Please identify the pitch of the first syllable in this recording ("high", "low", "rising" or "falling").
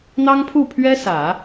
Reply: high